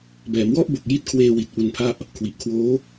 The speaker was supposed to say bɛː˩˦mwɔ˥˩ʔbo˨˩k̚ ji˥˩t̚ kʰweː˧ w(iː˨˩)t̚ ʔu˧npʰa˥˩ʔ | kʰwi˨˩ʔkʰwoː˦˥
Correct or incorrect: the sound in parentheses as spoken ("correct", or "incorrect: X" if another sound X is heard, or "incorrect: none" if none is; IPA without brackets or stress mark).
incorrect: i˨˩